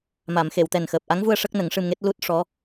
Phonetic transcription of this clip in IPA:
m a˨˩˨ m x e˨˩˨ w t̪ ɛ˨˩ n x əː˨˩ p̚ ʔ a˧˥ ŋ v u˧ ə̯ ʂ ə˦˥ k̚ n ə˨˩˦ ŋ ʂ ɨ˧ m ŋ e˦˥ t̚ l u˦˥ t̚ ʂ ɔ˧˥

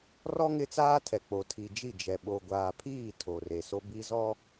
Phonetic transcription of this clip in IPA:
r ɔ˦ ŋ ɪ˦ t͡s aː˦ tʰ ɛ˨ k͡p o˨ tʰ i˨ d͡ʒ i˦˨ d͡ʒ ɛ˨ ɓ o˨ ɡʷ aː˨ pʰ iː˦˨ tʰ o˨ r e˨ s o˦ b i˦ z ɔ˦

